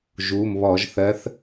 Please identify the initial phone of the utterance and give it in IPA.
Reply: ʒ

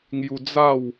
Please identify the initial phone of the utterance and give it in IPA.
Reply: ŋ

